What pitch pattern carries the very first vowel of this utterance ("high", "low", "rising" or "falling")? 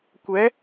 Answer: rising